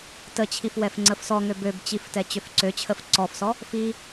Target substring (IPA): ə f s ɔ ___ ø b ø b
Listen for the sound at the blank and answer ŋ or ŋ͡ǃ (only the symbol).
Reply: ŋ